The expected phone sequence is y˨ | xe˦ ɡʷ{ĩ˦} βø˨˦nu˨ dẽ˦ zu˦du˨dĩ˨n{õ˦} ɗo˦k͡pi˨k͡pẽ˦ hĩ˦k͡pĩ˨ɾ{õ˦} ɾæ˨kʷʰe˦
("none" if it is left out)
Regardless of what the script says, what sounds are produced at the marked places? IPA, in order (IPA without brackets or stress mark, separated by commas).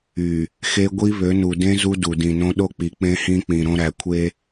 i˦, õ˦, õ˦